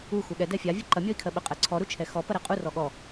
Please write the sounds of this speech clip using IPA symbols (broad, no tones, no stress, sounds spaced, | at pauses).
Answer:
u x u ɠ ɛ d ɛ fʲ a vʲ u ǃ ɐ mʲ ɔ i̯ kʰ ɜ ɓ ə qʼ ɛ ǀʰ ɔ ɾ u t͡ʃʰ ɛ x ɔ p ɐ ɾ ɛ qʼ u r ɔ ɠ ɔ